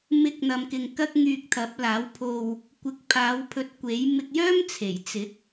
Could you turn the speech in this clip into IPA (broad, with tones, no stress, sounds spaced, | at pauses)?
m ɪ˨˥ k̚ n̪ ɐ˨ m k ɪ˨ ŋ k ɐ˧ k̚ ŋ yː˧ k̚ t̪ʰ ɐ˨˥ p̚ l aː˨˥ w pʰ o˧ w | kʷ ɪ˨ k̚ pʰ aː˨˧ w pʰ ɵ˨˥ t̚ kʷ e˨˥ j m ɪ˧ k̚ j œː˥ m t͡sʰ e˨˩ j t͡s ɪ˨˥ k̚